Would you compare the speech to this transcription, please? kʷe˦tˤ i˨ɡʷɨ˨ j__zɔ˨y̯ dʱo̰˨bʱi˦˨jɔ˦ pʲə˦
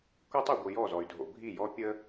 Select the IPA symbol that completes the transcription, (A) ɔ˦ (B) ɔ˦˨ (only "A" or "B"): B